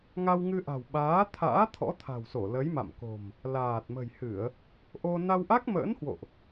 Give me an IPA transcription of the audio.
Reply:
ŋ a˧ w ŋ ɨ˧ ʔ a̤˨˩ w ɓ aː˨˦ t̪ʰ a̰ː˧˥ t̪ʰ ɔ̰˧˥ t̪ʰ a̤˨˩ w s o˧˩ l ə˨˦ j m a̰˧˨ m k o̤˨˩ m | l aː˨˩ t̚ m ə̤˨˩ j h ɨ˧˩˨ ə̯ | ʔ o˧ n a˧ w ʔ a˦˥ k̚ m ə̰ː˧˥ n h w o̰˧˨ ʔ

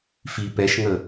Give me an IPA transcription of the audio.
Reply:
f i p ɛ ʃ ŋ ə

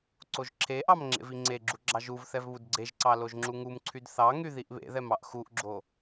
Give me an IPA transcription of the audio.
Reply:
ǀ o ʒ ǁʰ e ʔ ɑ m ŋ͡ǁ ḛ v i ŋ͡ǀ e ɡ͡ǁ u ɡ͡ǁ ɑ ʒ u v θ ɛ v β u d ɡ͡ǀ e ʒ ǀ ɑ l o ʒ ŋ͡ǁ u ŋ u m ǀʰ y d θ ɑ ŋ y ð i ʔ β ḛ ð ɛ m ɑ ʔ x u ʔ ɡ͡ǁ o

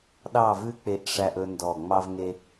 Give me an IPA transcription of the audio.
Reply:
ɗ ɑ˦˨ v ʉ˦ k͡p e˧ ʔ ʂ æ˧ ʔ ɵ˦ n d ɔ˦˨ ŋ͡m ɑ˧ v ŋ e˧

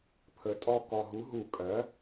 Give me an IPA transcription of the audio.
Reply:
pʰ ə˩˥ tʼ ɔ˦˨ k ɔ˨˩ ɦ u˩˥ ɦ u˧˩˧ kʼ ɜ˩˥

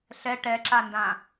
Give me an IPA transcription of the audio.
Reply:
ɬ ɛ ʈ ɛ ǁ a n d ã

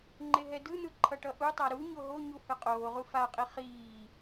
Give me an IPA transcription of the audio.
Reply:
ŋ͡ǃ e ɦ ɛ d ɯ n̪ ɯ ǃʰ ʌ ʈ ʌ ʔ u tˤ a ɾ u ɲ o ɦ o ɲ u h ɯ qʼ oː ʁ u f a qʼ i χ iː

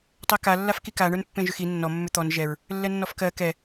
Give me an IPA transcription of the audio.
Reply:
tˤ ɜ k a lː a f k i k a ɳ ə˞ n pː ẽ ʒ ʏ x i nː ɔ mː ʏ t̪ ɔ n ʒ ɛ ɹ | lː ɛ nː ɔ f k ɜ k ɛ

